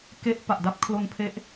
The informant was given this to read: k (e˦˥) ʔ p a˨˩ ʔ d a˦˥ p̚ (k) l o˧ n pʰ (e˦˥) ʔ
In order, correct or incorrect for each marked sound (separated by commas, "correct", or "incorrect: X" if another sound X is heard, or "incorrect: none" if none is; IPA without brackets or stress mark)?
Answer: correct, incorrect: kʰ, correct